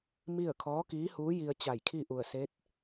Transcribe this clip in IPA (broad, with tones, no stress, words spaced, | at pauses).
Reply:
mi˥˨ə̯ kʰɔː˧˥kiː˧˥huː˧˥ji˧ə̯ t͡ɕa˧˩jkʰi˥˨ʔu˧˩ə̯se˧˥t̚